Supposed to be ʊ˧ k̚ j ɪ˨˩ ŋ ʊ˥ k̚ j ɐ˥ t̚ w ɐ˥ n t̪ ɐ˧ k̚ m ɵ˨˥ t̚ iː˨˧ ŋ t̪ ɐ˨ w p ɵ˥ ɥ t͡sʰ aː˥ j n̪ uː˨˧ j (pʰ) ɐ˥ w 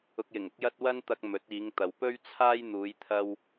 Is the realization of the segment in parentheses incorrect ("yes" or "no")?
yes